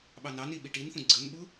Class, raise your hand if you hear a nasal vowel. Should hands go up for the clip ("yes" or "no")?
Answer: yes